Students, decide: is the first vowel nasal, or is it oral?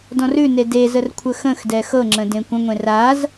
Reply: nasal